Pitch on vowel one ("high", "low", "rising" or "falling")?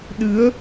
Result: rising